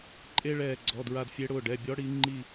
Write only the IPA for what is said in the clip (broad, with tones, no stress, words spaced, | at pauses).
ǃʼe˥ɭɛː˦˨ɡ͡ǀɔ˩˧˩ dɹa˦˨dfʲe˧˥ɽʊː˩˧˩ ɖɛ˩˧˩bʲɔ˧˥ ɽi˧˥ ŋ͡ǃi˦˨